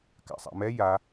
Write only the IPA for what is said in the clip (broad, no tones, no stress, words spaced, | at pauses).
ka̰sˤa̰mɛ ja